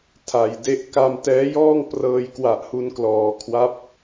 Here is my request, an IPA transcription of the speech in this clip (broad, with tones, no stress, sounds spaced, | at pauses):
tʰ a˨˩ j d e˦˥ ʔ k a˧ m t ɛː˦˥ j ɔː˥˩ ŋ p r ɤː˧ j k w a˨˩ ʔ h u˧ n k l ɔː˩˦ kʰ w a˦˥ p̚